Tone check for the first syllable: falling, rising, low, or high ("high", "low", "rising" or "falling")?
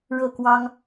falling